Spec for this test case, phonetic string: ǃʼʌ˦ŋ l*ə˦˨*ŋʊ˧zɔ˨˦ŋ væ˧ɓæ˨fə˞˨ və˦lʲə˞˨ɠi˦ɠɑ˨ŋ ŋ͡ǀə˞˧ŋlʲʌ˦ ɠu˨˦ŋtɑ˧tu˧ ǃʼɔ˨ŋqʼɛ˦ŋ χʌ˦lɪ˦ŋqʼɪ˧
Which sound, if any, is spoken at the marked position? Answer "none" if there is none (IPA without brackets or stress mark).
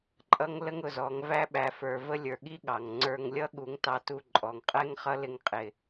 ə˦